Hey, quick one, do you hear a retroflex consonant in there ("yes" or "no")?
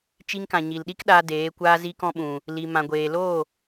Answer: no